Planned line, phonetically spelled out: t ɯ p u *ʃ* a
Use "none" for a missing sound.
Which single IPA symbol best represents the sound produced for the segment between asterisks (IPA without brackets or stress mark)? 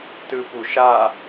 ʃ